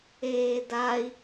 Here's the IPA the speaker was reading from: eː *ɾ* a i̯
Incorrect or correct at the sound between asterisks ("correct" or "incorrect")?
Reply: incorrect